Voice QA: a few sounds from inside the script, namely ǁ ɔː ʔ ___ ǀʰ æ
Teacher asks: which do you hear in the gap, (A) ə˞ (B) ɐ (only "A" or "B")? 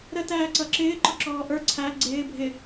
A